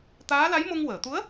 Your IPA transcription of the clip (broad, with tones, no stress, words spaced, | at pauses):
t̪aː˧˥la˧˥j mo˧ŋwəː˨˩˨ t̪u˧˥ə̯